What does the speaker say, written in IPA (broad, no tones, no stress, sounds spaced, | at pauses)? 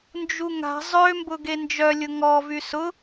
n d͡ʒ u ŋ a̤ zˤ ø m b ʊ ɡ e n d͡ʒ œ lʲ ʊ ŋ ɔ v y s ʊ